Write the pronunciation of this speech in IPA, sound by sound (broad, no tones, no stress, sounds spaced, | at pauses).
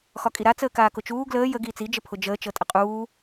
x ɒ kʼ i ɾ a t͡s əː k aː k ʊ t͡ʃ uː ɡ l əː j ə ɡ iː t͡s i d͡ʒ ə pʰ ʊ d͡ʒ əː t͡ʃ ɤ tʼ ə qʼ uː